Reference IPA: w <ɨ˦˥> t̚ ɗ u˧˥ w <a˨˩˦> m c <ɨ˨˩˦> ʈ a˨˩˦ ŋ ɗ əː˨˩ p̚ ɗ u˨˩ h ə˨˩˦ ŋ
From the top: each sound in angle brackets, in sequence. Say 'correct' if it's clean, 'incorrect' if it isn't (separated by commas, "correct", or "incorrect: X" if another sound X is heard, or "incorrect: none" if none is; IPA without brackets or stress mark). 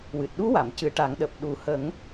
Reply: incorrect: ɨ˨˩, incorrect: a˨˩˨, correct